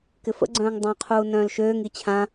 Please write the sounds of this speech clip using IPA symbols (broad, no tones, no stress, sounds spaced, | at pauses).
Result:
k ɪ f ə̰ ɡ͡ǀ œ̃ː ŋ dˤ œ̃ qʰ uː n œ̃ː l ʃ øː ŋ i t͡ɕʰ ã